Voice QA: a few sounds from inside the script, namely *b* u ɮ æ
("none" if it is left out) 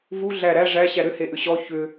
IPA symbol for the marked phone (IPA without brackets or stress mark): v